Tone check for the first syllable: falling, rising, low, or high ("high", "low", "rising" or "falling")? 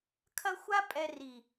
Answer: high